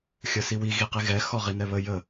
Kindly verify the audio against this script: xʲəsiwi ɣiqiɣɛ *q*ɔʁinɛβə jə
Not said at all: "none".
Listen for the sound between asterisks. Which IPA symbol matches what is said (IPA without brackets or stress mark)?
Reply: x